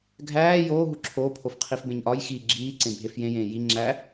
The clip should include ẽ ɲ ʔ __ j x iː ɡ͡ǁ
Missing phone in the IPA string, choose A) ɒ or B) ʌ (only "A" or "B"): A